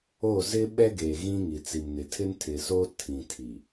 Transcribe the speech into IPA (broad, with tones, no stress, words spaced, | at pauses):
o˦˨ zɪ˦ɓɛ˦ɡeː˨ ɣĩ˦ŋi˨t͡si˨mnɪ˨ tʰɪ˦ntʰɪ˨so˦ tʰĩ˨tʰi˨